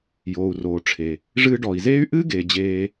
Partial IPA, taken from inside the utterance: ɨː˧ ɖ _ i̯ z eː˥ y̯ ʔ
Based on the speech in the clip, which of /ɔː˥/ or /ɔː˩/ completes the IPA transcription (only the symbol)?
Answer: ɔː˩